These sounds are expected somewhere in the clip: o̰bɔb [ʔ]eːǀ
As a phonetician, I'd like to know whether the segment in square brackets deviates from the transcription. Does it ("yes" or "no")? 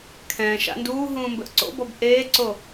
no